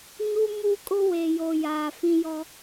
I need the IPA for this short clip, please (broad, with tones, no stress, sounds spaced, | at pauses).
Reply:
ɲ u˦ m u˦ kʼ ʊ˦ w e˨ j o˨ j aː˨ f ĩ˦ j ɔ˦